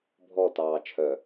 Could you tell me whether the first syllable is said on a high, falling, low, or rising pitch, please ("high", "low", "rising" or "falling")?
falling